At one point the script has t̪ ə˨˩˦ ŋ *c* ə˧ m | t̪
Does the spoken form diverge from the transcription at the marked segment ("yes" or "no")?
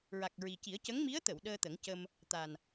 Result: no